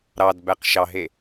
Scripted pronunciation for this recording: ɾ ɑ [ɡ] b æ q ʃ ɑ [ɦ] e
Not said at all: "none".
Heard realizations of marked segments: d, ɦ

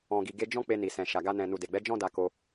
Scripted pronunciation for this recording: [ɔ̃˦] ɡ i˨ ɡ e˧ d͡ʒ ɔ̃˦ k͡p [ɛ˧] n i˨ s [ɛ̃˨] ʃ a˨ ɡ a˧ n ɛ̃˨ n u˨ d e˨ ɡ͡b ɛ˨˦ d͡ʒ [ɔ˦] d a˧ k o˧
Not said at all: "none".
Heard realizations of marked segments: ɔ̃˨, e˧, ɛ̃˨, ɔ̃˦

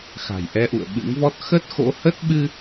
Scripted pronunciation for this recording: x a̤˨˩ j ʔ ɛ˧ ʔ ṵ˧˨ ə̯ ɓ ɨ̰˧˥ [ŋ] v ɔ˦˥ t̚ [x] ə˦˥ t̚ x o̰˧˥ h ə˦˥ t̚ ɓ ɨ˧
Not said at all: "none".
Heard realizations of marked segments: ŋ, x

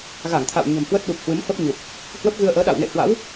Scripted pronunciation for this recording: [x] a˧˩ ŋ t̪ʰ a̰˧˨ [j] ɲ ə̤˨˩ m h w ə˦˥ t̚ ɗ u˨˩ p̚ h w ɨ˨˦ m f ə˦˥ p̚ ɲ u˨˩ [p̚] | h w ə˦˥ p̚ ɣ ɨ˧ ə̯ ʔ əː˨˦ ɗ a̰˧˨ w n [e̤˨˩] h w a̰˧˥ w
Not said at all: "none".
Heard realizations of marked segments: ɣ, w, p̚, ḛ˧˨

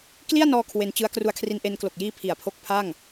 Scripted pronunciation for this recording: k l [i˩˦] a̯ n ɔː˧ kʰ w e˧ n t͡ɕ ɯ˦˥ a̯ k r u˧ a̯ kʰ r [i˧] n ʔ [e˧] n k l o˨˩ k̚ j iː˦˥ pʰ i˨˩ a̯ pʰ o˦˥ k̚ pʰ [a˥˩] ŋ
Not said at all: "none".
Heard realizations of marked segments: i˥˩, i˧, e˧, a˥˩

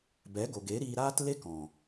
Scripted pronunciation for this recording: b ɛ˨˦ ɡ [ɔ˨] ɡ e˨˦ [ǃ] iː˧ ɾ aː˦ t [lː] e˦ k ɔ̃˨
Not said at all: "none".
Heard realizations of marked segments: o˨, ɾ, l

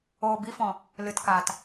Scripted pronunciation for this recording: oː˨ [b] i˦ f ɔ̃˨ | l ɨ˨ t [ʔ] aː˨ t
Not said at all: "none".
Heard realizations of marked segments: b, k

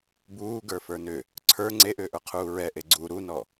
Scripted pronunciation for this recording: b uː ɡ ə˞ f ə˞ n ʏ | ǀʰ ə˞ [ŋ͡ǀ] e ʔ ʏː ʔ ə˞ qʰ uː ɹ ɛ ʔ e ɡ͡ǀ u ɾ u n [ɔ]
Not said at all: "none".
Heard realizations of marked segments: ŋ͡ǀ, ɔ

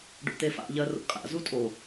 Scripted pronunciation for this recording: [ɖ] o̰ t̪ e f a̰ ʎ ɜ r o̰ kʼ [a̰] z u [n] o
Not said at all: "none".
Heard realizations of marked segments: ɖ, a̰, tʼ

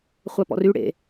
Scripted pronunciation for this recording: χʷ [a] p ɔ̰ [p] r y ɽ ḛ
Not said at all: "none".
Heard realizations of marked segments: a, none

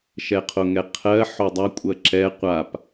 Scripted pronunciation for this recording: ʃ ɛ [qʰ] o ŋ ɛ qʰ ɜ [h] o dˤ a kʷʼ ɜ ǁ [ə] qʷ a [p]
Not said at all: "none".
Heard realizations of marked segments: qʰ, ħ, ɛ, p

